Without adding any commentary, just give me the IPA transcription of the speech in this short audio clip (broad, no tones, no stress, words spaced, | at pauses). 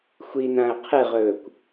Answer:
xʷinãə̯ qʰɨʁɵːkʷ